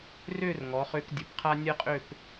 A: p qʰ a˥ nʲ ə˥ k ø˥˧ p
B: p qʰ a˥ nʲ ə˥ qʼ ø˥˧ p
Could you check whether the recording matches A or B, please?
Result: B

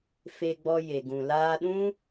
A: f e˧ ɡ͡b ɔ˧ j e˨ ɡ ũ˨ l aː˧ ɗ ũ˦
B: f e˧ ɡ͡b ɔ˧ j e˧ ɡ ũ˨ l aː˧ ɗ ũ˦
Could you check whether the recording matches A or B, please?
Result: A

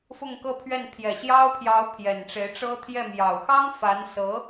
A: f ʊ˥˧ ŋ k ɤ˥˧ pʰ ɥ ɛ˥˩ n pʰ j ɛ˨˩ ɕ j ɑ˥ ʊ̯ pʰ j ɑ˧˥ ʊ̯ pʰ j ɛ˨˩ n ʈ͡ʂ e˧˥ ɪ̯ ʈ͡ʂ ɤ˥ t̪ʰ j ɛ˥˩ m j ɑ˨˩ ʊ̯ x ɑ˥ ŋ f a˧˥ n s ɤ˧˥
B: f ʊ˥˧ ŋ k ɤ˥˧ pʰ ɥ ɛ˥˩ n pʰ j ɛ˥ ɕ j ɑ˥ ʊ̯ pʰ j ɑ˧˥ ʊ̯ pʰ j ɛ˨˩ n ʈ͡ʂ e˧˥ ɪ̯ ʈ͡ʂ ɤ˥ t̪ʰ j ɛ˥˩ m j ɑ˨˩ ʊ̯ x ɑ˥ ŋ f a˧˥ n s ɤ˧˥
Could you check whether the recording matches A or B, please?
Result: A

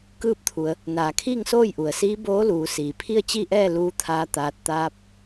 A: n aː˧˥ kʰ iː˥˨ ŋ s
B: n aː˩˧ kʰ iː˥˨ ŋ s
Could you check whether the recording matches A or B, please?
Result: B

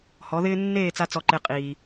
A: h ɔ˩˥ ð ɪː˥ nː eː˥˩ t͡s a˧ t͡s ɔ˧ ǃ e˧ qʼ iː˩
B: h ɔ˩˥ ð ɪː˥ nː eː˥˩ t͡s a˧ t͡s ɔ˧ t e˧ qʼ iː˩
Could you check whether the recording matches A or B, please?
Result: A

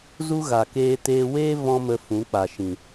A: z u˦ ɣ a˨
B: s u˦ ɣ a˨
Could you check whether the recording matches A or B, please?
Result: A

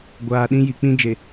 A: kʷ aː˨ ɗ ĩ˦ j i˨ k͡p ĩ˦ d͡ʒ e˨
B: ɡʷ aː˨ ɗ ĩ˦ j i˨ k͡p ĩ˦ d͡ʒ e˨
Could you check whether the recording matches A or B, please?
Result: B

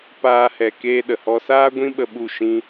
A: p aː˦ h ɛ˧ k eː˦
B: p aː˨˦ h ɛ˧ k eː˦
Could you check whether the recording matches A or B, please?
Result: A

